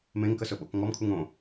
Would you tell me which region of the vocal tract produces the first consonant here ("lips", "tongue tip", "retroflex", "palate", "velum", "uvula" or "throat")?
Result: lips